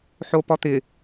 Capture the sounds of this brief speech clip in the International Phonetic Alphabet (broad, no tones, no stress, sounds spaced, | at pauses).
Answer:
ħ o p ɔ t̪ ɪ